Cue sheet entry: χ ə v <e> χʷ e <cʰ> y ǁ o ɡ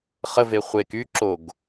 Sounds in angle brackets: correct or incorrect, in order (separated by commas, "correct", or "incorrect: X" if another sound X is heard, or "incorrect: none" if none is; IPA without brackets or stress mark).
correct, incorrect: k